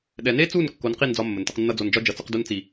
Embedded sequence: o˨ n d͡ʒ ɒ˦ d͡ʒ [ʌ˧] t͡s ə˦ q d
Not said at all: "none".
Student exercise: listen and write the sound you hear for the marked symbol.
ʌ˨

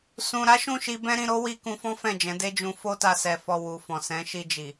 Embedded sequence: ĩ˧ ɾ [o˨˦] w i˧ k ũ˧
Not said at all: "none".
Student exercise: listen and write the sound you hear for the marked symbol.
o˦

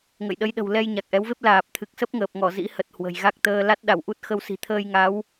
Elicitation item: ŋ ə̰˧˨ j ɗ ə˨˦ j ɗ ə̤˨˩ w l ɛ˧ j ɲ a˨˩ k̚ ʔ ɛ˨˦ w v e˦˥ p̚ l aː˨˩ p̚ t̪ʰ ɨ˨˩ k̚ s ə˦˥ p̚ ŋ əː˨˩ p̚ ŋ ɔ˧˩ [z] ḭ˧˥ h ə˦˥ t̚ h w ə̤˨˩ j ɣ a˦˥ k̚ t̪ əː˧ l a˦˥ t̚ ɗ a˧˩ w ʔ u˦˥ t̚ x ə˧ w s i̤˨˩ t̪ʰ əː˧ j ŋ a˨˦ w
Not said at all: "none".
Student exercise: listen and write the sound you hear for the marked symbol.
z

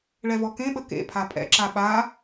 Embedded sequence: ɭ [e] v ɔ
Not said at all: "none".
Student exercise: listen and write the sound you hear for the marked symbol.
ɛ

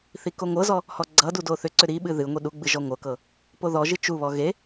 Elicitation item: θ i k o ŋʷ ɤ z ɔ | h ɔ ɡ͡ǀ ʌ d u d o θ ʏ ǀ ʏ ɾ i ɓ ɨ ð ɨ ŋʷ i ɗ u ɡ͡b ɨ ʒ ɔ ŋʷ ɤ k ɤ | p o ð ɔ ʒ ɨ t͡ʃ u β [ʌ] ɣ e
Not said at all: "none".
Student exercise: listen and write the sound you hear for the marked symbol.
ɔ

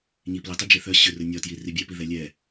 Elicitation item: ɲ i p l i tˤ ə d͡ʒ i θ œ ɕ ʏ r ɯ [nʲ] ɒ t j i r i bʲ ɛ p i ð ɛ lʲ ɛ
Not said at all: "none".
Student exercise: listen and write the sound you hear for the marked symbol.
nʲ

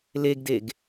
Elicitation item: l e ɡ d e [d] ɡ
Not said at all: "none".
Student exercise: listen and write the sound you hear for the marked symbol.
none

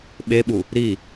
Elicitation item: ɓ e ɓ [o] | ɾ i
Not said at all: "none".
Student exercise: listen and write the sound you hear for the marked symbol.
u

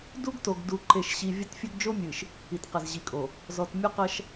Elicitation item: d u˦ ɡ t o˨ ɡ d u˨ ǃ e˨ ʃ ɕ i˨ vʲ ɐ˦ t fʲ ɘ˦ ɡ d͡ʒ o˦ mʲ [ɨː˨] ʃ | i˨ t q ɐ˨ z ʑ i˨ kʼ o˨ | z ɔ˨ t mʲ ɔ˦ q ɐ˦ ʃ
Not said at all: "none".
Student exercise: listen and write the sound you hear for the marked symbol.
ɨ˨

